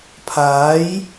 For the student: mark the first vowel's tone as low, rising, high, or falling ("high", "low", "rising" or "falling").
rising